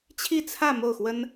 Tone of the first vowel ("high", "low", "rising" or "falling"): falling